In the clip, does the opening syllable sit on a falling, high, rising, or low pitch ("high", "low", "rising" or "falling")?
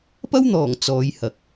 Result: high